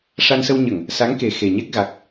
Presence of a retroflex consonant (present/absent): present